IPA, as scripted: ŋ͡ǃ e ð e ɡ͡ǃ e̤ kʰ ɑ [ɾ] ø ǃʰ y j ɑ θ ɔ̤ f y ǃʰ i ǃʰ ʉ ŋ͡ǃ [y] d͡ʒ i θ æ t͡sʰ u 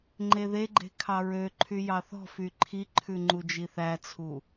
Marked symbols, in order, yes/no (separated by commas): no, no